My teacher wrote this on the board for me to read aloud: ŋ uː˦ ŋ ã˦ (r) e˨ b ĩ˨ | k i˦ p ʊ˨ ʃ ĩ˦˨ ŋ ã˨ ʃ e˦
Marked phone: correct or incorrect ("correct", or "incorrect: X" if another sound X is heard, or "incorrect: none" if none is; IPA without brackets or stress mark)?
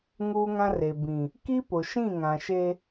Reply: correct